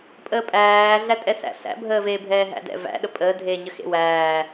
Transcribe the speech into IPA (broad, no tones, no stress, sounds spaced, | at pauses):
pʼ əː pʼ æː ɮ æ tʼ ɛ s æ̰ ɬ æ̰ bʱ əː v eː bʱ ɛː ɦ æ̰ d ɛ̰ v æ̰ ɗ ə pʼ əː dʱ eː ɲ ə x ḛ w æː